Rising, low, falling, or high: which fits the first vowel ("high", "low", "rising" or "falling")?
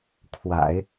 low